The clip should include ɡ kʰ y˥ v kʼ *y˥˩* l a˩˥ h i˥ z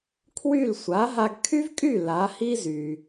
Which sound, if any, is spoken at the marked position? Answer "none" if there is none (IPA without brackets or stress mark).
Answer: y˥˩